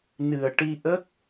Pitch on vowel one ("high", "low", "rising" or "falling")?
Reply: low